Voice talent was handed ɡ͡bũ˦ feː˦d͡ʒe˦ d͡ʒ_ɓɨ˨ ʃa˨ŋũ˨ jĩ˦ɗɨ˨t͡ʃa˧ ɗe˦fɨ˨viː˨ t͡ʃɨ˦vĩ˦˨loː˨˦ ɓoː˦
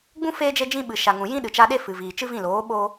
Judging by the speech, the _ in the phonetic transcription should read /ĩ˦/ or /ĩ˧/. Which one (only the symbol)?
ĩ˦